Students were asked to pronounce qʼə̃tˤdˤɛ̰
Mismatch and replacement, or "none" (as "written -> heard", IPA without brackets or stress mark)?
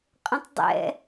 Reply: none